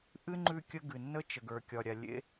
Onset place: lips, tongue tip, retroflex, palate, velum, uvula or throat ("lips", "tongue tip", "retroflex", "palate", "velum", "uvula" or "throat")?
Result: throat